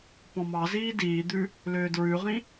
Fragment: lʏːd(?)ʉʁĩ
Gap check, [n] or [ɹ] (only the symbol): ɹ